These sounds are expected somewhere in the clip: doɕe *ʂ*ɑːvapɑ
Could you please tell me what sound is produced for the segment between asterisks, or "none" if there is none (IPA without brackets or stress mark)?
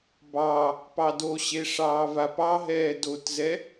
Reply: ʂ